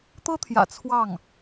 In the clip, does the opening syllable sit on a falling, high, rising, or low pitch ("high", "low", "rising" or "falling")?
high